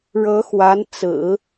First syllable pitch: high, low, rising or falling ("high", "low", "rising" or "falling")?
rising